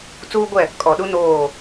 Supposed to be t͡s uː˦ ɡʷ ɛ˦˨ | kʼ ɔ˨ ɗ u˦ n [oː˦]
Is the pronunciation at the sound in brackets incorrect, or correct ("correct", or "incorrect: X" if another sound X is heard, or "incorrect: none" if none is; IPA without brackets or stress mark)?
incorrect: oː˦˨